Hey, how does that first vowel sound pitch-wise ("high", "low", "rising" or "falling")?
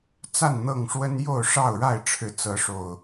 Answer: falling